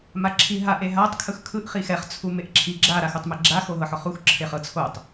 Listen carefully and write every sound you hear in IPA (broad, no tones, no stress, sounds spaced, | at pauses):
m a ǁʰ i ɦ a ʔ e ɦ a tˤ kʰ ɯ x kʰ ɯ ʔ χ i x ɛ χ t͡sʰ u m e ʔ ǁʰ i ɡ͡ǁ a ɾ a x u tˤ m e ɡ͡ǁ a x o ɦ ɤ ħ ɔ χ u x ǁʰ e χ ɤ t͡sʰ o tˤ